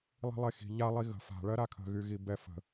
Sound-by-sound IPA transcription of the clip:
lˠ i̤ lˠ e x i̤ ʎ a lˠ i ɣ ə̤ f a̤ ɭ ɜ ɾ a kʰ ə̤ ɣ y ɣ i b ɛ f ə̤

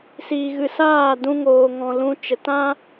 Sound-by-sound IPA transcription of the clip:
s iː˨ ɣ ɨ˨ s aː˦˨ d ũ˧ ŋ oː˨ ŋ ɔ̃˨ l ũ˧ t͡ʃ ə˨ t ã˦

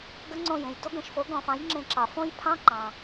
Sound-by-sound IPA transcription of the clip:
ɡ ə˦˥ ŋ͡ǀ õ˦˨ j ẽ˩ j d o˦˥ ɡ ə̃˧˩˧ ʃ f o˩˥ ɡ ɔ̃˧˩˧ f ɑ̃˩˥ j ŋ͡ǁ ẽ˧˩˧ ǁ ɑ˩ f õ˦˥ j pʰ ɑ̃˦˥ ǃ ɑ̃˩

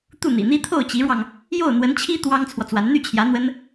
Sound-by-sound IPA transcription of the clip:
t̪ u˥˩ n̪ ḭ˨˩ n̪ i˥ t̪ʰ o˥˩ ʊ̯ t͡ɕ i˧˥ ɻ w ɑ˧ ŋ | j o˥˩ ʊ̯ n̪ w ə˧˥ n t͡ɕʰ i˥ t̪ w ɑ˥ ŋ t͡sʰ w ɔ˨ t͡s w a˧˥ n n̪ y˥˩ t͡ɕʰ j ä˧˥ n̪ w ə˥ n

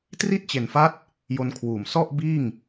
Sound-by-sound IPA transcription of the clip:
t r i˥˩ t̚ t͡ɕ e˨˩ n f a˦˥ t̚ | j o˧ n kʰ w uː˨˩ m s ɔ˥˩ ʔ b iː˥˩ ŋ

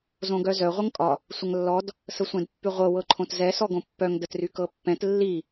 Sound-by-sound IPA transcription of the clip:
z õ ɡ œ z œ ʁʷ ɤ ŋ kʼ ɒ | sʷ ə ŋ lː ɔ d | s ə sʷ ɛ̃ d pː y ʁʷ ɤ w ɤ ǃʰ õ t z ɛ s ɔ ɡ õ pː œ ŋ d ə t r y k ɤ pː ɛ̃ t lː i

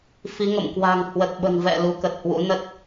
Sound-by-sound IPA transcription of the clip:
f i˨˦ ŋ ə̰˧˨ m k w a̤˨˩ ŋ h w ə˨˩ t̚ ɓ ə̤˨˩ n v ɛ̰˧˨ l u˨˦ k ə˨˩ t̚ h w ṵ˧˥ n ə˦˥ t̚

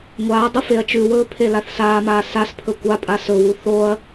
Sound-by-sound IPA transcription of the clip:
ŋʷ aː dˤ u f e ɐ̯ t͡ʃ ʉ w ɵː pʰ e l a θ s aː m aː s a s pʰ ɵ kʷ a pʼ a s ɵ w u θ o ɐ̯

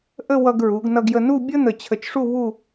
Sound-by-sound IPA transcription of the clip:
ʔ ə˥˧ w ʌ˧ ɡ ɹ u˩˧ ɡ n ʌ˧ ɡ j ə˧ n u˥˧ bʲ ə˥ n̪ ə˧˩ t͡ɕʰ ə˧˩ t͡ʃ ʂ u˥˧ β u˥˧

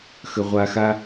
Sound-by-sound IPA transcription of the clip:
x ə˧ ʁʷ a˧ x a˦

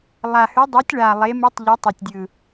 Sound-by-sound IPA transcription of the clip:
lˠ a˨˩ h ʉ˨˦ dˤ ʉ˨˦ tʲ ɭ a˨˩ lˠ e˨˦ m ɯ˨˦ tˤ ʎ ɘ˨˦ tˤ ɵ˨˩ tʲ dʲ ɯ˨˩

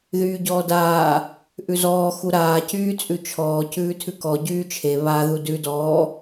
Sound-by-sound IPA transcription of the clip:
ð yː ɟ ɔː d aː | ʔ ʉ z ɔː x u ɾ aː c yː t͡sʼ ʉ t͡ʃʰ ɔː c ʉː tʰ ʉ k ɔ ɟ yː t͡ʃʰ e β a ð u d ʉ d ɔː

